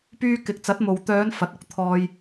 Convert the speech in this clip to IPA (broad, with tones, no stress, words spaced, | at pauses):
pyː˥kɪ˧k̚ t͡sɐ˨˥t̚mo˨wt̪œː˨˧n fɐ˨˥t̚ʊ˨˥k̚ t̪ʰɔː˧j